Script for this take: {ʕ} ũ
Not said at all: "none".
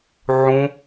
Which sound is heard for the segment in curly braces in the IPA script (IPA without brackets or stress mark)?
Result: ʕ